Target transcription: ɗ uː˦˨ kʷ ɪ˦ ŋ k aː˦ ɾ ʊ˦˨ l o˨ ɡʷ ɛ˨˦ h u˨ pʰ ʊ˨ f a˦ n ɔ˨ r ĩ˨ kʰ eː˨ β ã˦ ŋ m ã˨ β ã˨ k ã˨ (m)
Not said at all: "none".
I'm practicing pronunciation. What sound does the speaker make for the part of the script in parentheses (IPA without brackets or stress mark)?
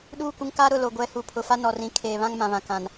n